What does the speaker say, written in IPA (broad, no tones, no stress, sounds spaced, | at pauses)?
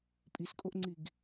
pʼ i s kʼ o ʔ ŋ͡ǀ i ɡ